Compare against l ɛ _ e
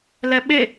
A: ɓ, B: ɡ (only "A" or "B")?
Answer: A